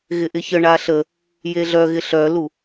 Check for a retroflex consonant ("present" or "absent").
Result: present